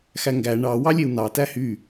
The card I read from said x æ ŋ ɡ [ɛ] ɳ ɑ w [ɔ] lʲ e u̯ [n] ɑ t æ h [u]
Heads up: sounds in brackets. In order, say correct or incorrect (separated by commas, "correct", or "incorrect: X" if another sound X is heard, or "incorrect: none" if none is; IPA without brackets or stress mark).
incorrect: æ, incorrect: ɑ, correct, incorrect: y